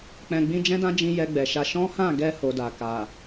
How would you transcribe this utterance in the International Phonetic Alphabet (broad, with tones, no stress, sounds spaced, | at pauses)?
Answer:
k͡p ɛ̃˨ ɡ͡b ĩ˧ d͡ʒ ɛ̃˦ d ã˦ d͡ʒ ĩ˧ j ɛ˧ ɡ͡b ɛ˨ ʃ a˧ ʃ ɔ̃˦ h ã˦˨ ɡ ɛ˧ h o˨ d a˨ k a˨